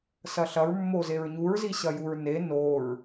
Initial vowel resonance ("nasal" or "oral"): oral